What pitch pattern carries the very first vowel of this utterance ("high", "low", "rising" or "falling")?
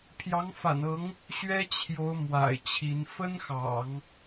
rising